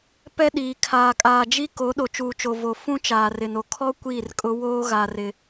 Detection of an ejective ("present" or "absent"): present